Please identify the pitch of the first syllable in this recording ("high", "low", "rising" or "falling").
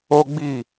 high